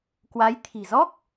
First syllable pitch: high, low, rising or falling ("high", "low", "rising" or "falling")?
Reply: rising